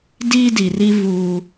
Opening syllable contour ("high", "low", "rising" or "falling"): high